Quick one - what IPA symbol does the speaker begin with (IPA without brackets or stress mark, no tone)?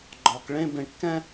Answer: ɡ͡ǃ